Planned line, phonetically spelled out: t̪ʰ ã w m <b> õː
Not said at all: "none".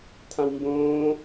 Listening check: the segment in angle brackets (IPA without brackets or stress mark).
b